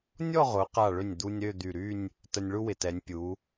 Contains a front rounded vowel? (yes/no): yes